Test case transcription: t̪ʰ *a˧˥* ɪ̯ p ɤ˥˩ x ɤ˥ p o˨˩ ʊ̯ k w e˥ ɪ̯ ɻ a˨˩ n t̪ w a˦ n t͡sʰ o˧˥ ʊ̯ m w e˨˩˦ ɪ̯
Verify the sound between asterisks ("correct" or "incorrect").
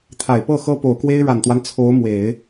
incorrect